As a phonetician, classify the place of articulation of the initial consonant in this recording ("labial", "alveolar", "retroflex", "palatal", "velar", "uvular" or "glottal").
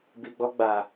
labial